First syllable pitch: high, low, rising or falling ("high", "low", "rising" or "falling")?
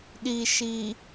low